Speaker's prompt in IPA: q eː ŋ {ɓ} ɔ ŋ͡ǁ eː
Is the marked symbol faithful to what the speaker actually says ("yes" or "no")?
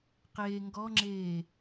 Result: no